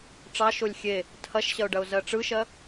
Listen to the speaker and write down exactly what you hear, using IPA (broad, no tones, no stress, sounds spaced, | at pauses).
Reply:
ʈ͡ʂ ɑ ʃ o lʲ xʲ e | tʰ ɐ ʃ ɕ ɐ ʊ̯ ɖ ɐ ʊ̯ z ɜ ʈ͡ʂ ɯ ʃ ɜ